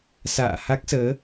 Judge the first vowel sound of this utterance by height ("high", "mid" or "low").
low